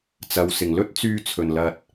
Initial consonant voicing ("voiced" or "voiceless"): voiceless